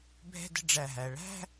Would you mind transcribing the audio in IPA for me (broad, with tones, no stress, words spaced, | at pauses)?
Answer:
bʱɛ̤˥˧də̤˥˧ ɖ͡ʐæ˧˩ɦæ˩˧ ɭæ̤˥˧